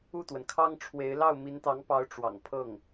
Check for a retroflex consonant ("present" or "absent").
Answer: present